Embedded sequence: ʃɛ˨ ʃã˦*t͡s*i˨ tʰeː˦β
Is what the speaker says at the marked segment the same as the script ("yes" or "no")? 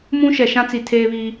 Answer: yes